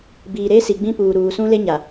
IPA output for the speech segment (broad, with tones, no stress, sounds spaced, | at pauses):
b iː˨ ɾ eː˦ s i˨ ɡ͡b ĩ˦ p uː˨ ɾ uː˨ s ũ˦ l e˦ ɲ a˨